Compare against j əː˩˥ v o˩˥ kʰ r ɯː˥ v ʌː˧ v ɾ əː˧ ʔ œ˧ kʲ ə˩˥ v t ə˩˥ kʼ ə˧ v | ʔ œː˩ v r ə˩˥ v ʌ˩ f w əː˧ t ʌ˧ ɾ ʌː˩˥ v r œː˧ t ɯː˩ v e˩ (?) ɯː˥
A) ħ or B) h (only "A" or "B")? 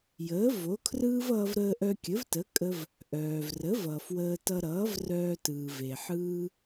A